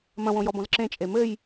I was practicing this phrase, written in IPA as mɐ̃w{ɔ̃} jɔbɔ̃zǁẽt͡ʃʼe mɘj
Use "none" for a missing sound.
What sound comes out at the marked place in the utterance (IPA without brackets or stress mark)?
õ